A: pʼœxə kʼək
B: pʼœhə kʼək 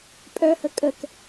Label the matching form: B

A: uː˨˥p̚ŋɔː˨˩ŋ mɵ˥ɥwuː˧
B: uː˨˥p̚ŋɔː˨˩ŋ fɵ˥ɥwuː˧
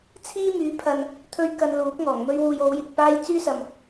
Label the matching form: A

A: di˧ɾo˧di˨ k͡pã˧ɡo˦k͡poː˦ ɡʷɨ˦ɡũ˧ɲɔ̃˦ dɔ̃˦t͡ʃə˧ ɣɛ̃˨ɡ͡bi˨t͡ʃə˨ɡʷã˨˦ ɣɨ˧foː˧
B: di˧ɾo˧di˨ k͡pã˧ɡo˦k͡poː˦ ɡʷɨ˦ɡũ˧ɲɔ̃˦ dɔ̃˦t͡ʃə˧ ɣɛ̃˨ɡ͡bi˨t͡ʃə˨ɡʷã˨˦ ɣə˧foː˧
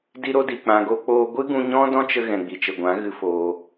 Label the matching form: A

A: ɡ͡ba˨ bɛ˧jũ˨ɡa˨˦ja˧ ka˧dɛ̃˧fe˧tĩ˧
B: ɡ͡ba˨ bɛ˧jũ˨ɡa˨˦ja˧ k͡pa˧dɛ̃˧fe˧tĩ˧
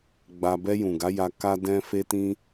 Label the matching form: A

